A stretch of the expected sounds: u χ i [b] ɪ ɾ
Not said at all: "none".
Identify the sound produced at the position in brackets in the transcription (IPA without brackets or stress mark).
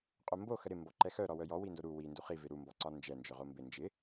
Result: v